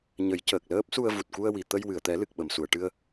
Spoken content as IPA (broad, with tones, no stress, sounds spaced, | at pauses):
ɲ ə˨˩˦ j c əː˨˩ k̚ l əː˦˥ p̚ s u˧ ə̯ v u˨˩ t̚ k u˧ ə̯ w i˨˩ t̪ ə˧ j w ɨ˨˩˨ ə̯ t̪ ɛ˨˩˦ l ɨ˨˩ k̚ ɓ ə˨˩˨ m s u˨˩˨ ə̯ ʈ ɨ˧ ə̯